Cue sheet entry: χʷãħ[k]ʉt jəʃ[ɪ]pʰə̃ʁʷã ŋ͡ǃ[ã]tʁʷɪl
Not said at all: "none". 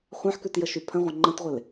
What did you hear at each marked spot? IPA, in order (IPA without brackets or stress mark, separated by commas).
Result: k, y, ə̃